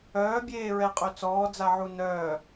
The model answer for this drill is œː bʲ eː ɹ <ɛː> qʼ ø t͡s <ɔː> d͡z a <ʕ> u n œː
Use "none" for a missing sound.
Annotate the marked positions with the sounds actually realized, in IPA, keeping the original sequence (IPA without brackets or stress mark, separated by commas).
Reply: ɛ, ɔː, ʕ